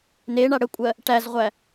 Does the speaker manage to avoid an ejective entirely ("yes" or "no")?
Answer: no